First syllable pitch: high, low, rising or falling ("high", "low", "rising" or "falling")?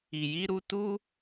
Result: low